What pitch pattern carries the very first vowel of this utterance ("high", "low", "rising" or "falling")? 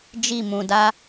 falling